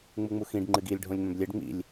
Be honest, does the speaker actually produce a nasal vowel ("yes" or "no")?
yes